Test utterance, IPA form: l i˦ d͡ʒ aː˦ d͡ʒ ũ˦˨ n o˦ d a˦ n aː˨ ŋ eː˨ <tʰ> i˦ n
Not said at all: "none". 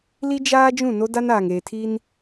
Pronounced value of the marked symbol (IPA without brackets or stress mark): tʰ